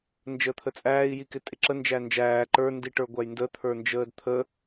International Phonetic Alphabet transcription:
n d͡ʒ əː t̪ʰ ə t͡sʼ æː i̯ j i k ɪ tʼ ɪ ǁ ə n d͡ʒ æ n d͡ʒ æː ǃ ə˞ n d i ʈ ə˞ ɡʷ æ j n d ə t̪ʰ ə˞ n d͡ʒ əː d t̪ʰ ə

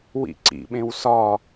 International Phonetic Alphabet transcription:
w ḭ ǀ ḭ ɓ ẽ w s ɒ

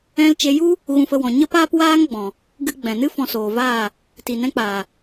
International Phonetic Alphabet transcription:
ɛ̃˧ l t͡ʃ e˧ j u˦ | ɣ ũ˧ f ə˧ w ɔ̃˨ ɲ ə˦ p aː˦ p w aː˦ ŋ ɡ͡b ɔ̃˨ | ɡ ɨ˧ ɡ͡b ɛ̃˨ n ɨ˦ f ɔ̃˧ s oː˨ v aː˦˨ | t i˨ n ɛ̃˧ k͡p aː˨

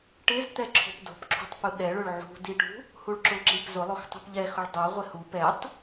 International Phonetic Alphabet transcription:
ʈ ɪ z t̪ ɛ ǁʰ o̤ p d o̤ p ǁʰ ṳ tˤ p u ɗ ɛ ɭ ʊ ɭ ʕ ṳ d i ʈ ṳ | h u ɭ ǁ ʊ ǁ i p z ʊ lˠ o x tˤ ṳ p ʎ ɛ x ʊ ɭ dˤ o ʁʷ ɪ h u p ɛ tˤ

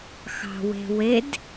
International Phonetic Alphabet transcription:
x ɑ̤ w e̤ w e d

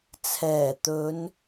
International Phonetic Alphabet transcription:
t͡sʰ ɛː˨˩ t̪ ɵ˨˧ n

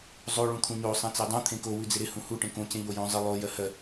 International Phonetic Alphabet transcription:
zˤ o ɭ ũ t̪ʰ ũ ɲ o sˤ ẽ t͡s e dˤ ũ t̪ʰ ẽ k o w ʉ d͡z ɪ ɾ ɪ h ũ h u ʈ ẽ k õ c ẽ ʎ o j õ zˤ ɪ lˠ o j ɜ h ɜ

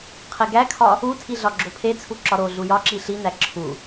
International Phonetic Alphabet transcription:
qʰ e ɡ æ kʰ ɒ | u tʰ i ɮ ɒ ɡ͡ǁ o pʰ e t͡sʰ u ǁ ɒ ɾ o ɮ u j ɒ ǁ i ɬ i n̪ æ ǁʰ u

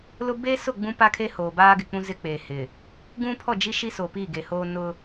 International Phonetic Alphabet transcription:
l ʊ˦ b eː˦ s ʊ˦˨ ɡ͡b ũ˦ p a˦ kʰ e˦ h oː˨ b aː˦ ɡ ɪ˨ k͡p ũ˦ z ɪ˦ k͡p eː˨ h ɪ˨ | ɡ ũ˦ pʰ ɔ˦˨ d͡ʒ i˦ ʃ i˦ s o˨ p i˦˨ ɡ e˨ h oː˦ n ʊ˦

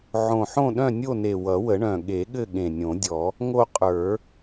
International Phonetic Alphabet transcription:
ʕ õ˨˩ ħ õ˦˨ ɗ œ̃˦˨ nʲ o˦˨ n e˨˩ w ʌ˨˩˦ w ə˨˩˦ ɳ œ̃˨˩ ɠ e˨˩˦ ɠ ɘ˦˨ ɠ ẽ˨˩ nʲ õ˨˩˦ dʲ ɔ˨˩˦ | ŋ o˦˨ qʼ ə˞˨˩˦

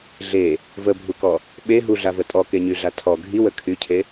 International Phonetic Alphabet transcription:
ɮ e | v ə bʱ u k ɔ | ɓ e ɦ u ɮ a v ə tʼ ɔ k e ɲ y ɮ a tʰ ɔ ɡʱ i w ə kʰ y cʰ e

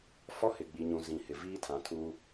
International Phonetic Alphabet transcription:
f ɔ˦ h ɪ˨ ɡ͡b i˨ ɲ ũ˨ z ĩ˨ h ɪ˨ v iː˦ tʰ ã˨ tʰ u˦

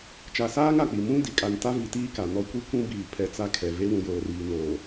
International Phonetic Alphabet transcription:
t͡ʃ a˨ s aː˦ ŋ a˨ k͡p i˨ m ũ˦ d i˨ kʼ a˨ n t a˦ v i˨ t iː˦ k a˨ n ɔ˦ kʷ i˦ kʷ ũ˦ b iː˨ pʰ ɛ˨ t͡s a˦ kʰ ɛ˨ v e˦ w ũ˨ j oː˨ r iː˨ n oː˨

